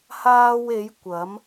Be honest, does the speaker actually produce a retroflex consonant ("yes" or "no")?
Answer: no